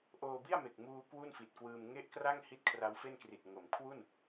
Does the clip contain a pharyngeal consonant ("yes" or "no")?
no